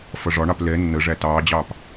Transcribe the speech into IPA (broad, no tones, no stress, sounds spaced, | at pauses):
f ʌ ʐ ɒ ɳ ɑ p l ɛ nː ə ʐ æ t ɑː d͡ʑ ɑː p